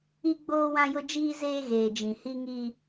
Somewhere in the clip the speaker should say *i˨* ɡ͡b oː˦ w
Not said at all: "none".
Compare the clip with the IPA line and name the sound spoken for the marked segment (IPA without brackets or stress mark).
i˦